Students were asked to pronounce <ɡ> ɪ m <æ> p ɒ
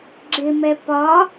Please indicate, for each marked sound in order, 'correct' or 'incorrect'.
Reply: incorrect: ɡ͡ǁ, incorrect: ɛ

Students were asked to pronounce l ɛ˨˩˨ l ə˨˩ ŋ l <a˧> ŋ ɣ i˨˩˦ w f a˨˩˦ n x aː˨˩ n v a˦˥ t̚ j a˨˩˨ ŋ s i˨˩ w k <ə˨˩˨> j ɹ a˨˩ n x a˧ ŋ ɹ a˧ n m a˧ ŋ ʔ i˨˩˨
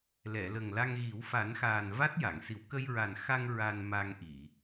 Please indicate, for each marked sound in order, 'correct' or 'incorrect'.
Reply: correct, incorrect: ə˧

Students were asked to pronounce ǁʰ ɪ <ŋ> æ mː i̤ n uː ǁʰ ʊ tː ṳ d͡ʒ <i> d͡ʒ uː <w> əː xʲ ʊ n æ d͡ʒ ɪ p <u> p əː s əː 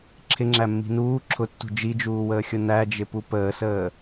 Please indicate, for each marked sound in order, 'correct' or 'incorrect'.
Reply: incorrect: ŋ͡ǁ, correct, correct, correct

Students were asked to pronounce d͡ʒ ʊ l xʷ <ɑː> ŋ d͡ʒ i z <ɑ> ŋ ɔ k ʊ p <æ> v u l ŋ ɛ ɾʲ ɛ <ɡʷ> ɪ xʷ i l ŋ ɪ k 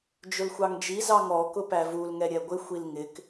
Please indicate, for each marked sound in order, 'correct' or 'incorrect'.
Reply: incorrect: ɑ, correct, correct, correct

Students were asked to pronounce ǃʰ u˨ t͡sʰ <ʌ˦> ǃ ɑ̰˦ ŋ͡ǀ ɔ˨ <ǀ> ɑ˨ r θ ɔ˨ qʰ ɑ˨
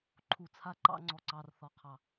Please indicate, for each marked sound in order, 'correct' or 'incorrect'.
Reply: incorrect: a˦, correct

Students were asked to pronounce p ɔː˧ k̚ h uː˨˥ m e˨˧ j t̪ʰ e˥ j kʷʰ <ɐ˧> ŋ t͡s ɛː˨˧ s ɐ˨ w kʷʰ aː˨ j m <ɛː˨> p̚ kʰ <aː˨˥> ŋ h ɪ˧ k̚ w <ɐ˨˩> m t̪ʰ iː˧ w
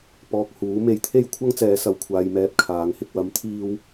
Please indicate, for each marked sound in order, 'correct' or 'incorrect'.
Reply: incorrect: ɐ˥, correct, correct, incorrect: ɐ˨˥

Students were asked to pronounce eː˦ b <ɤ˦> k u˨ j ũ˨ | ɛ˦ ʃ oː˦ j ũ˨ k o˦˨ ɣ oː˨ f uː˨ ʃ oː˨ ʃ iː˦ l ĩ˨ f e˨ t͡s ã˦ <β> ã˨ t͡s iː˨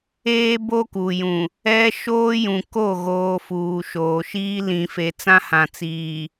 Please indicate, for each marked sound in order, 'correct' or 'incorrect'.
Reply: incorrect: o˦, incorrect: h

